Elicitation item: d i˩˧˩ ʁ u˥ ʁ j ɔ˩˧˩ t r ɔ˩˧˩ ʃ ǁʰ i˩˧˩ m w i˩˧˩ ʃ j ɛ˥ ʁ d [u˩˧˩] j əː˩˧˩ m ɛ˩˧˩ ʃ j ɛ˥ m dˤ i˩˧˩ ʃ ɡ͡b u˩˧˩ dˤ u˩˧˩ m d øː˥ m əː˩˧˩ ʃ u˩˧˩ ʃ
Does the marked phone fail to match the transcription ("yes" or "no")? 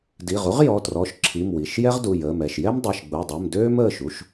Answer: no